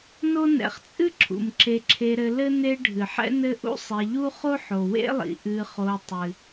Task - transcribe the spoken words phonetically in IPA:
no˥ nɛ̰˨χt͡sʼɨ˥ ǁʰṵ˩mǁe˨ǁʰe˨ɾɘ˨ lɘ˥ ne˦ ɖʱɨ˩ħɛ̰˥ nɘ˦ʔṵ˥ sˤe˨ʎu˥ χo˥ħo˩wḛ˥lˠḭ˩ ʔɨ˨χo˨ tˤɨ˩

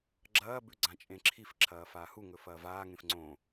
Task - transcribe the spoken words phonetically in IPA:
ɡ͡ǁɐː bʉɡ͡ǀãt͡ʃʼẽǁʰif ǁʰɐːfaːhu ŋɵfɐːvaː ŋẽfŋ͡ǀõ

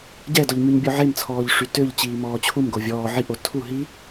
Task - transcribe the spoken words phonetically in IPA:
ɟɛdɔʎ myɲbʲɔʕemt͡sʰɔːʎ ʂytøʎ t͡ɕiːmɔːt͡ɕʰum ɡovʲɔː ʕiʔ otʰu ɦi

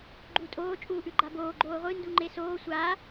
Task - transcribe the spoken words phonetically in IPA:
ɡ͡ǃutʼoː t͡ʃʼuːʔʉɡ͡ǃaboː ɡ͡ǃoːʁʷɨ nduŋ͡ǃesoː sʷa

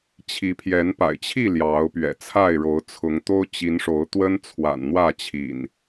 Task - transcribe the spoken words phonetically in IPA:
t͡ɕʰi˨˦pʰjɛ˨˦npa̰˨˩ɪ̯ t͡ɕʰi˥˨ ljɑ˨˦ʊ̯pɥɛ̰˨˩t͡sʰa˥˨ɪ̯ ɻo˨˦ʊ̯t͡sʰʊ˨˦ŋt̪o˦ʊ̯ t͡ɕi˨˦nʂo˨˦ʊ̯t̪wə˦n t͡sʰwa̰˨˩nn̪wä˥˨t͡ɕʰḭ˨˩n

